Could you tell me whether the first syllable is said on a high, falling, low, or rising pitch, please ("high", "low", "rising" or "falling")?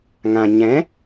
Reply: low